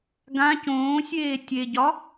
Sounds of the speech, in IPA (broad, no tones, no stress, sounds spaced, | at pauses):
ɡ ã c õː sʲ eː tʲ e ɟ ɒ